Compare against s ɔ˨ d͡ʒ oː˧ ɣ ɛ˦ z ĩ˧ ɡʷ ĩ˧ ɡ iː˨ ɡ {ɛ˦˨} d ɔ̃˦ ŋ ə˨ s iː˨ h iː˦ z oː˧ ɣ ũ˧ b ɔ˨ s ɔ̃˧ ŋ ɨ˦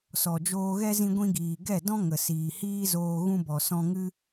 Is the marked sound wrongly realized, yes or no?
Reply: no